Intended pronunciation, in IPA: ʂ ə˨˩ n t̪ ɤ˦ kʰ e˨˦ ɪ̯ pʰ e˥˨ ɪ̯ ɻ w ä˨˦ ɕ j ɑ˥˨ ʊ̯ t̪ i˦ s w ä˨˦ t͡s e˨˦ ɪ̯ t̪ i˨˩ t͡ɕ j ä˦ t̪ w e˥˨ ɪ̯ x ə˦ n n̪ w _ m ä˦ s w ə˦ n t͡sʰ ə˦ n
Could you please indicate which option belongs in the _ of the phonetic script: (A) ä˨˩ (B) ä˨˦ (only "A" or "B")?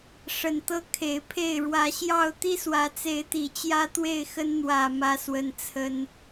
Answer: A